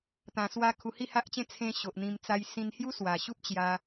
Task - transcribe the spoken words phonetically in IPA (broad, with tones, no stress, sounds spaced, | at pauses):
t̪ ã˨˩ s w a˧ kʰ u˧ h i˥˧ h a˦ ʔ t͡ɕ ẽ˦ t͡sʰ ẽ˧ ɕ o˨ ʔ n̪ ĩ˧ m t͡s a˧ j s ĩ˧ n h j u˦ s w a˨˩ ɕ u˦ p̚ t͡ɕ j a˧